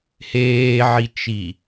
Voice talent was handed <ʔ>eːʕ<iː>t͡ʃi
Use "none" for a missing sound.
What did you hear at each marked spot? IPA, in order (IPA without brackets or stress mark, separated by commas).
h, i